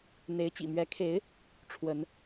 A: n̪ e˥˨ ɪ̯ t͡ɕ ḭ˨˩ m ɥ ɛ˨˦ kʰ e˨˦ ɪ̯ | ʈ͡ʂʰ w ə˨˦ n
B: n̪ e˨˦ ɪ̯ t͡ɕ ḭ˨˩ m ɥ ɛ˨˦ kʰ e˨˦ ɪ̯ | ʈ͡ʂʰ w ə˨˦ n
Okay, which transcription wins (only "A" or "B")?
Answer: B